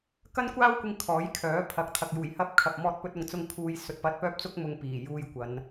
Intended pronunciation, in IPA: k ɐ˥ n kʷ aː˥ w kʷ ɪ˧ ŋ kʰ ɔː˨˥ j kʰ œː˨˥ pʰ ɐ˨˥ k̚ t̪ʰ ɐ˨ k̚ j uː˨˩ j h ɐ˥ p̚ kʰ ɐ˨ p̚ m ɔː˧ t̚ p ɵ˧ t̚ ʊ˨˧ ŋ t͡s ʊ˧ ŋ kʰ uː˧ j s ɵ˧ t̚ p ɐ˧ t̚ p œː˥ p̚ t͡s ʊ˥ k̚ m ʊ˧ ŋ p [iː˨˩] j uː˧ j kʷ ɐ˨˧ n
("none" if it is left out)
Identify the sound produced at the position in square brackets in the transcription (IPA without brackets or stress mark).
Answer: iː˨˩